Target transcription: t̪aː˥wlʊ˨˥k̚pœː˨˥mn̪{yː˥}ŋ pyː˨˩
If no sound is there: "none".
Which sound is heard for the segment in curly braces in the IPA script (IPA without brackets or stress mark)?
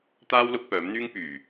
yː˥